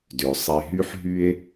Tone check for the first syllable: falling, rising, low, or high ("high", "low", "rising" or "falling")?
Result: low